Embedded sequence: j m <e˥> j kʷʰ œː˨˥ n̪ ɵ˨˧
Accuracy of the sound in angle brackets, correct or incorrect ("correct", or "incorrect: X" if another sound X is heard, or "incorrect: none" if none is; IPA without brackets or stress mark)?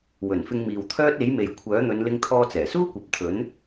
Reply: incorrect: e˨